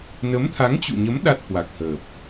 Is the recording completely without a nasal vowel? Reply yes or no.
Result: yes